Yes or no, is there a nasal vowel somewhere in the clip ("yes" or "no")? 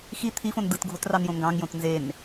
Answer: yes